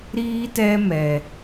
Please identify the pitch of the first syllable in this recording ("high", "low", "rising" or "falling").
high